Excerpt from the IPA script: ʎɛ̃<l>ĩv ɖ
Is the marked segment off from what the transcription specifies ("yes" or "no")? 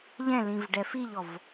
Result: no